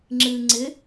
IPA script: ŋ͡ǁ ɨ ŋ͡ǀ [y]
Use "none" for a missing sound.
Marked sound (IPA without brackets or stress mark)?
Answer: ɪ